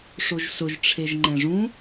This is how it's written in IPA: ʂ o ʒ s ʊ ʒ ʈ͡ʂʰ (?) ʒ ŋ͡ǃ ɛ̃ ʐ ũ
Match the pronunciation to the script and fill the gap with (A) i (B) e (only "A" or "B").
B